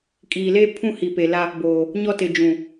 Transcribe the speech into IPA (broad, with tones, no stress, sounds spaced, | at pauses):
kʼ iː˨ l eː˦ pʰ ũ˦ h i˨ p e˨ l a˦ | b oː˨ | ɲ ɔ˦ t ɪ˨ d͡ʒ ũ˨